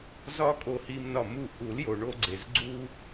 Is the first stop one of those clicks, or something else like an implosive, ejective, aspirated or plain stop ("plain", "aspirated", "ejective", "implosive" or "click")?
ejective